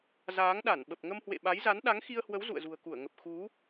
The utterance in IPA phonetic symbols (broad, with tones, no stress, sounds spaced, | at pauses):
z aː˨˦ ŋ ɗ a˧˩ n ɓ ə˨˩ p̚ ŋ ə˧ m h w ḛ˧˨ ɓ a˨˦ j z a˨˦ n ɗ a˨˦ ŋ x i˧ ə̯ h w ə˨˦ w z ṵ˧˨ ə̯ z ṳ˨˩ ə̯ k u˧˩ ə̯ ŋ ə˨˩ p̚ x u˨˦